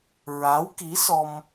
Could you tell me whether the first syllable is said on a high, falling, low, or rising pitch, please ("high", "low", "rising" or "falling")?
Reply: rising